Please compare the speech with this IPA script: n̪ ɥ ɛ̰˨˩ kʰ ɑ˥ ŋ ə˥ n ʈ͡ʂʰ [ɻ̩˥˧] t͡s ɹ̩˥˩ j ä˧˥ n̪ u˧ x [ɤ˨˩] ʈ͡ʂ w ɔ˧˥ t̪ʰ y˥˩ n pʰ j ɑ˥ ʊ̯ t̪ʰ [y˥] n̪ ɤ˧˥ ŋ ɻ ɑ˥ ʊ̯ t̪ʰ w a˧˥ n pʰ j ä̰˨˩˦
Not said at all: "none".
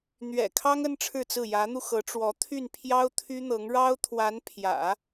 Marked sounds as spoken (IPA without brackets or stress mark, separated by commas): ɻ̩˥˧, ɤ˧˥, y˥